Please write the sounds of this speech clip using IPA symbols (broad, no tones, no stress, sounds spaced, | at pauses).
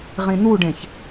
ʁ ĩ n̪ u ɖ ẽ ç